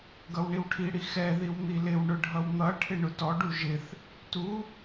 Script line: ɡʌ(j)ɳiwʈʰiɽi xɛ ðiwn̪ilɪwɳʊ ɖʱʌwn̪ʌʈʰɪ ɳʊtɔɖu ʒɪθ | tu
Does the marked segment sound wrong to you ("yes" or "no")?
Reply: yes